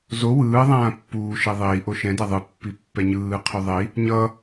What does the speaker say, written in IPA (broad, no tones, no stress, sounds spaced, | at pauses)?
z o w ɯː ðˤ ãː pː uː ʃ ɛ ðˤ iː ʔ o ʃ ɛ̃ d a ðˤ ɯ pː i pː ɛ ɲ ɯː qʰ u ðˤ i | ɲ ʌ